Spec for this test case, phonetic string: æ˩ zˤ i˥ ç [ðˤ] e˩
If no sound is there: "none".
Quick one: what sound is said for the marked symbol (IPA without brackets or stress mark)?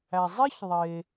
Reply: ðˤ